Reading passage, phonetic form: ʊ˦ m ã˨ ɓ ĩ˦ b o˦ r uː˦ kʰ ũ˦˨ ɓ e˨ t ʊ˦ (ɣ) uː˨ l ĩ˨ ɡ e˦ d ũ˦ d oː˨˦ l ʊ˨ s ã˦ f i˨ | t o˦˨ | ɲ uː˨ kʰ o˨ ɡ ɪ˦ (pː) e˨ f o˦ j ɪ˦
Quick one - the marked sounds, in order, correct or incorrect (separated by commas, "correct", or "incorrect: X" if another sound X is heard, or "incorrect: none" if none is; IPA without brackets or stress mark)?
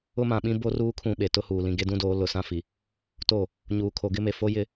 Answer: incorrect: h, incorrect: m